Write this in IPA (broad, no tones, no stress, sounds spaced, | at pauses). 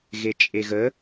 ɣ e t͡ʃʼ e ɣ ə